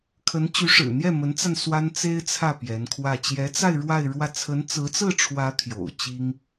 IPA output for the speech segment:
kʰə˧˥nt͡ɕy˧˥ʂɻ̩˨˩ n̪jɛ˥˩mə˧˥nt͡sa˧n swa˥nt͡se˥ɪ̯t͡sʰä˥˩ pjɛ˧˥nkʰwä˥˩ t͡ɕjɛ˧˥t͡sa˥˧ɪ̯ ɻwa˥˧ɪ̯ɻwä˥˩ t͡sʰə˧˥nt͡sɹ̩˧˥t͡sɹ̩˥˩ʈ͡ʂʰwä˧˥ t̪ʰjo̰˨˩ʊ̯t͡ɕi˥ŋ

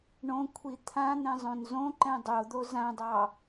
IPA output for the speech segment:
ɳõkʷʰi t̪ʰãn̪ɛ̃zˤõn zõǃɛ̃ dˤod̪o zãdˤɑ

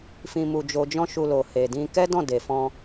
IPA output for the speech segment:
fĩ˧mu˧d͡ʒo˧d͡ʒɔ̃˦ ʃu˧lo˨ he˨dĩ˧ kɛ˦dɔ̃˦˨de˨ fɔ̃˧

